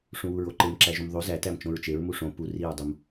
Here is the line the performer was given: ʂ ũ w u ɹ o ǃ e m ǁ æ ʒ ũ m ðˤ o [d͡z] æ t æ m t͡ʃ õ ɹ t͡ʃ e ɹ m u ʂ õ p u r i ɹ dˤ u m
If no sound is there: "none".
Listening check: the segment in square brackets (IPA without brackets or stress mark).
z